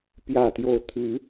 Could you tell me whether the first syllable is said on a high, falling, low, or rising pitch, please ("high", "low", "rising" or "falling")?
falling